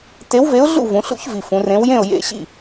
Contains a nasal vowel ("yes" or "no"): yes